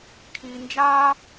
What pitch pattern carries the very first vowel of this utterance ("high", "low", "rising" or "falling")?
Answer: high